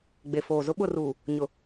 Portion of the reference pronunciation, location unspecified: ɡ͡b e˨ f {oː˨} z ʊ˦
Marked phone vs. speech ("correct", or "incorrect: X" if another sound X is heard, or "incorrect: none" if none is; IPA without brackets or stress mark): correct